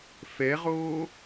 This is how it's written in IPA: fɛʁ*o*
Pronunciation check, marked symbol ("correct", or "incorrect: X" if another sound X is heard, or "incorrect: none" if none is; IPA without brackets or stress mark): incorrect: oː